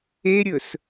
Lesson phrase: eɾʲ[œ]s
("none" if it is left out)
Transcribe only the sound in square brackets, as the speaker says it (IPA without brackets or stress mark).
ɵ